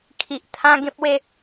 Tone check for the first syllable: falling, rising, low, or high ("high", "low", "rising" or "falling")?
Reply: low